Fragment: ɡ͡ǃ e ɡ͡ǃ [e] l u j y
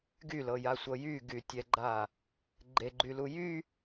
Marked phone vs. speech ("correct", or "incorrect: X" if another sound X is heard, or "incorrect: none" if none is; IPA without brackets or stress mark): incorrect: y